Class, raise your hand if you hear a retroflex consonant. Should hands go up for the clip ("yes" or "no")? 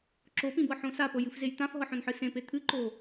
no